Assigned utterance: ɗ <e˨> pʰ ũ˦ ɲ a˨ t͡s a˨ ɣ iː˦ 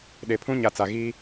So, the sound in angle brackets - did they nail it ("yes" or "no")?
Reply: yes